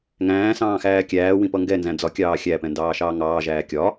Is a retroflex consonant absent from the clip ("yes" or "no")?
yes